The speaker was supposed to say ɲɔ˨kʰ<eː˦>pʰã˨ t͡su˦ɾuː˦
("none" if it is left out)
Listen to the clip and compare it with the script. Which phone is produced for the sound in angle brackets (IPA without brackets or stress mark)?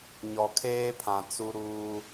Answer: eː˦